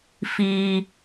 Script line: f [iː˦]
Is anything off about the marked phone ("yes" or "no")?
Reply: no